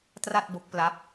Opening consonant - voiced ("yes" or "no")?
no